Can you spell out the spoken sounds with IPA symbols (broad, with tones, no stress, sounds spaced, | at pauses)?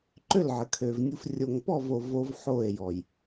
ǃ ø˦˨ l ʕ ə˨ kʰ ø˨ v nʲ u˨ f rʲ o˨ ŋ p ɔ˦˨ v o˨ v o˦ v ħ o˦˨ e̯ j ɔ˨ j